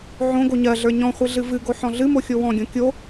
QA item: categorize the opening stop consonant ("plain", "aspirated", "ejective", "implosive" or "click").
plain